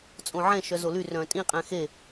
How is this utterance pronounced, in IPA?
t͡sʼ õ ʕ ɛ̃ ʃ œ z o l y r œ̃ tʼ ĩ qʼ ɛ̃ x e

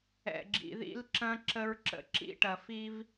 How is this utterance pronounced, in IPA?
ɛ̰˨ ɡ͡ǁ ḭ˨ ð ḭ˦ l ǁ ɐ̃˦ ǁ ə˦ ɹ ǁ ə̰˦ ǁ ḭ˦ ʈ ɐ˨ f i˦ v

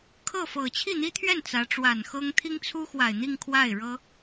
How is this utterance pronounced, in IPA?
kʰ ɤ˥˩ f ɤ˨˩ t͡ɕʰ i˥˩ n̪ i˥ t̪ʰ ɥ ɛ˥˩ n t͡s ä˧˥ ʈ͡ʂ w a˨˩ n x ɤ˥ ŋ t̪ʰ i˥ ŋ t͡sʰ u˥ x w a˨˩ ɪ̯ n̪ i˥˧ ŋ kʰ w a˥˩ ɪ̯ ɻ ɤ˥

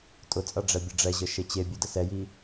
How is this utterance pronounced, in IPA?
tʼ ʊ t͡sʼ ʌ ɖ͡ʐ ɛ bʲ ə ɖ͡ʐ ɛ ʑ ə ʃ e t͡ɕ e bʲ ø d ə s ɛ j i

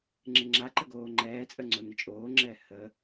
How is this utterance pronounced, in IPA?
ŋ͡ǁ ɪ ŋ͡ǁ a ǃ ə ɡ oː ŋ͡ǃ ɛː t͡sʼ ə ŋ͡ǀ o n ɪ t͡ʃʼ oː ŋ͡ǁ ɛː h ə

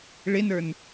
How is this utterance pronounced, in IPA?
ɭ ɪ n ə˞ n

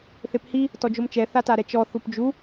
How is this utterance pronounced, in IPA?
θ e p h i | t ɔ d͡ʒ o m t͡ʃ ɛ θ a t a ɾ ɛ t͡ʃ ɔ θ u p d͡ʒ u

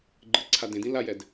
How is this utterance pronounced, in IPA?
ɡ͡ǃ ɯ ǀʰ a d ẽ d ĩ l a j ɛ d

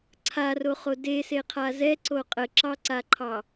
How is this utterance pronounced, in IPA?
ǀʰ a r o χ o d e s e qʰ a z ɛ ǀ o qʼ ə ǁ ɑ ǀ a ǃʰ ɑ

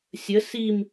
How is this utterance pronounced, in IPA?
sʲ ə s i m

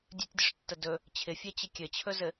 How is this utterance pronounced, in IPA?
dʲ ɵ tʲ dʲ ɵ ʂ tː ə d ɵ | t͡ɕʰ ɪ fʲ ɛ t͡ɕ ɪ kʲ ɘ t͡ɕʰ ɵ z ɘ

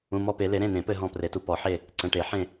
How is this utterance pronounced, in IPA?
ũ˩˧˩ m ɔ˦˨ p e˨˩˦ l e˨˩˦ ɾ ẽ˩˧˩ n̪ ẽ˨˩˦ p ɘ˦˨ ɦ ɔ̃˦˨ p r e˨˩˦ t u˩˧˩ p ɔ˨˩˦ ħ e˦˨ | ǀ ə̃˩˧˩ ʈ e˨˩˦ ħ ẽ˦˨

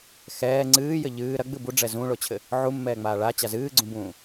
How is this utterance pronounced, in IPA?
x ɛː ŋ͡ǀ ɨː j ɘ ʎ ɨː ɾ ɐ ɡ͡b ɨ b u ɖ͡ʐ ɛ z ũ ɭ o t͡ɕʰ ɘ | ʕ u mː ɛː ŋ͡m aː ɭ a t͡ɕ a z ɨː ɡ͡ǀ ũ b ũː

